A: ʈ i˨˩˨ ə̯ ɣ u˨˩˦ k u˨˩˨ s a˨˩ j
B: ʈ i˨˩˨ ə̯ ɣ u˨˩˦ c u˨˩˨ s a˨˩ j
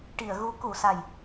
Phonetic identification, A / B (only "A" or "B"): A